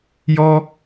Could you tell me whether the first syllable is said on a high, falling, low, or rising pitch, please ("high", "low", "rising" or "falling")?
high